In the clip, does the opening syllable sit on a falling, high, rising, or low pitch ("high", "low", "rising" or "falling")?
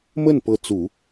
falling